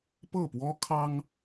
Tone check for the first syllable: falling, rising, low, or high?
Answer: falling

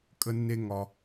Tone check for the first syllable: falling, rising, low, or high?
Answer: high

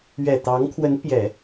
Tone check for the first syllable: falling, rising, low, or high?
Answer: low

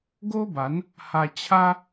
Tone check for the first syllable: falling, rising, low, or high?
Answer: high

